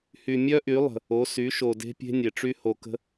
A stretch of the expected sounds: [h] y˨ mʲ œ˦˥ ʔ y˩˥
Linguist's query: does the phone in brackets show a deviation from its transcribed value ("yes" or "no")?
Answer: no